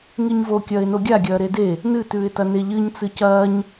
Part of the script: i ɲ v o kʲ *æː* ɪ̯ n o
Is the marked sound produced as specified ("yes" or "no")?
no